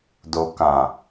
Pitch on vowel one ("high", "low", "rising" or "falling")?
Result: low